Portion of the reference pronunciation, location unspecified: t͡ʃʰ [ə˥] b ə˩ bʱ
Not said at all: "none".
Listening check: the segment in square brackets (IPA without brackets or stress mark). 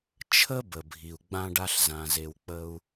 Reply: ə˥